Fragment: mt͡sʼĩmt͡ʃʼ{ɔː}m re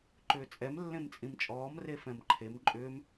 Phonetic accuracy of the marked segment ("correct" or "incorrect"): correct